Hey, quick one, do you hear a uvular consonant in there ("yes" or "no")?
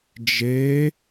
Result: no